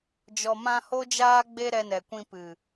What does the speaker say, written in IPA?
d͡ʒ ɔ˨ m ã˧ h o˦ d͡ʒ aː˦ ɡ͡b e˦ ɾ ɛ˧ n ɛ˨ kʷ ĩ˧ p ɨ˨

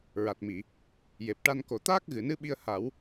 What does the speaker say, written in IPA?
ɹ a˨˩ t̚ m i˨˩˨ | j e˨˩ p̚ ʈ a˧ n k o˨˩ t̪ aː˦˥ k̚ ɣ ɨ˨˩˨ n ɨ˧˥ ɓ i˧ ə̯ h a˨˩˦ w

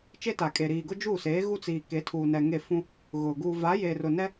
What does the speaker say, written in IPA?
t͡ʃ e˦ t aː˨ kʼ e˨ ɾ iː˨ ɡ ʊ˦ d͡ʒ uː˦˨ s eː˨˦ ɣ u˦ t͡s iː˨ k e˨˦ tʰ uː˨ n ɛ˨ ŋ e˦˨ f ũ˦ | ɣ ʊ˨ ɡ uː˨ v a˨˦ j eː˨ r ʊ˨ n ɛ˦

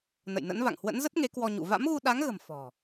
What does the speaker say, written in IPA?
n ə̰˧˨ j n ə̰˧˥ n v a̰˧˨ ŋ h w ə̰˧˥ n z ə˦˥ t̚ ŋ e˨˦ k w ɔ˧ ɲ ṵ˧˨ v a̰˧˥ m ɣ u˧ ɗ a˨˦ ŋ ɣ ə̤˨˩ m f ɔ̤˨˩

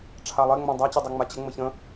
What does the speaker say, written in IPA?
ʈ͡ʂʰ a lˠ e ŋ͡m ã dˤ a t͡ɕ e dˤ ɜ ŋ͡m a t͡ɕ ə ŋ͡m ə ç ə̃

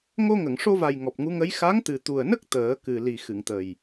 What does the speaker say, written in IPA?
ŋ o˧ ŋ ə˨˩˨ ŋ ʂ o˧ v a˨˩ j ŋ ɔ˨˩ p̚ ŋ u˧˥ ŋ ə˧˥ j x a˧˥ ŋ t̪ ɨ˨˩ t̪ u˨˩ ə̯ n ə˦˥ k̚ t̪ əː˨˩˦ k ɨ˨˩ l i˨˩ x ɨ˨˩˨ ŋ t̪ ə˨˩ j

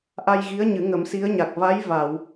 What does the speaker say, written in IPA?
ʔ a˧ j ɣ i˧˥ ə̯ ɲ ɨ˨˩˦ ŋ ə˨˩˦ m s i˧˥ ə̯ ɲ a˨˩ k̚ v a˧˥ j v a˨˩˨ w

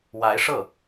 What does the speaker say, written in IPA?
w a˧˥ ɪ̯ ʂ ɤ˥˩

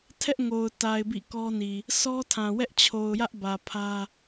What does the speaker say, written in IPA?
tʰ ɛ˦ ʔ ŋ o˨ ʊ̯ t a˨ ɪ̯ b ḭ˦˨ k ɔ˦ n i˨ | s ɔ˦ tʰ ã˨ w ɛ˦ ʔ t͡ɕʰ o˨ ʊ̯ j ä˦ ʔ b ä˨ pʰ ä˦

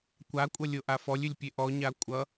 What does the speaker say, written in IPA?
kʷ a kʷʼ ʌ lʲ o ʔ a f ɔ lʲ ʏ lʲ pʲ e ʔ ɔ ɲ a kʷʼ ʌ

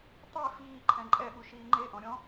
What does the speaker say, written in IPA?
tˤ e f iː ǃʰ ɛ̃ ǃʼ ɛ ɓ u ʃ iː ŋ͡ǃ e ʔ ɔ̃ ɾʲ ɔ̃

